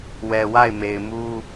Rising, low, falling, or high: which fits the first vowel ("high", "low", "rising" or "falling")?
low